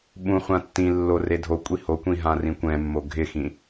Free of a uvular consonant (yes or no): no